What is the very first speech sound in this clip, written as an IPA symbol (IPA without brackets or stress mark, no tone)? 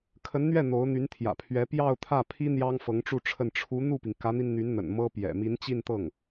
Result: kʰ